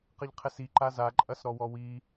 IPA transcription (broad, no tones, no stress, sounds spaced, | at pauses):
q ɘ ʎ qʰ ɛ s i ǃ a z a ǃʼ ɐ s ɾ ɔ w ɔ w i